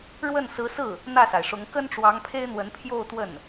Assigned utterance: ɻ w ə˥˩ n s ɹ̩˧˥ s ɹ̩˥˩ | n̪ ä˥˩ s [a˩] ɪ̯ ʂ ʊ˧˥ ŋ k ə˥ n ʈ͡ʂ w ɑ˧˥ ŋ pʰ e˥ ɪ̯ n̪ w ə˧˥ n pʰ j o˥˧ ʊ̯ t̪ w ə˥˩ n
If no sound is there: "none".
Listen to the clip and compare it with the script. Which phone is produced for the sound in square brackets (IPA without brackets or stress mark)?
a˩